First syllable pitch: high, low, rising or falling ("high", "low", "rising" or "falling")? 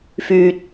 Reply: low